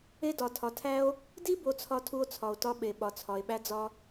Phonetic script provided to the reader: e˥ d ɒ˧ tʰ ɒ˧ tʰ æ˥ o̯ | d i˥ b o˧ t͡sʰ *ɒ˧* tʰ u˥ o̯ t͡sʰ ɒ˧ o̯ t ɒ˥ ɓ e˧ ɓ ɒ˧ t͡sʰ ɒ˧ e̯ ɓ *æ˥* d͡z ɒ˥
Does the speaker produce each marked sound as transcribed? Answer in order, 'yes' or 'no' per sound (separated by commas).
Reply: yes, yes